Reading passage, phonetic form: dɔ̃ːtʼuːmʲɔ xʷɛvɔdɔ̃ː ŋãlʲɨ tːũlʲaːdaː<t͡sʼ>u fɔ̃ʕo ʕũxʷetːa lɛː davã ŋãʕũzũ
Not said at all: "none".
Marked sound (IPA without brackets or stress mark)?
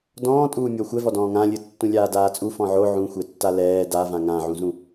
t͡sʼ